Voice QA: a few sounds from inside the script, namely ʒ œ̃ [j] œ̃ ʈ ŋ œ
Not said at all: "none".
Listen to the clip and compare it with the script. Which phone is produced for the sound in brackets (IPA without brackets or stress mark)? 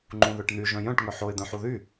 j